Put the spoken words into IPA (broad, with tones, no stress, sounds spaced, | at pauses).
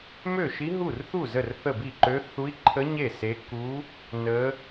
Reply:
m ø˥˨ ʃ i˦˥ ɦ u˥˨ r θ u˥˨ z ə˥˨ r θ ə˥˨ b i˥˨ ǃ ø˦˥ θ u˦˥ i̯ ǃʰ ə˦˥ ɲ e˥˨ s e˦˥ k u˦˥ | n ə˦˥